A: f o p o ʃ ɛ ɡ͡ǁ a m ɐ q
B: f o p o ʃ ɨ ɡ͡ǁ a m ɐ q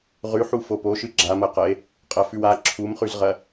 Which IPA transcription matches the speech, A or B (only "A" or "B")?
B